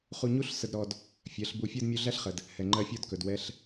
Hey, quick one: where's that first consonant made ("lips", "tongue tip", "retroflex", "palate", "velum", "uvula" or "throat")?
uvula